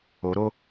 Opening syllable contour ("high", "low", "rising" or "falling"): rising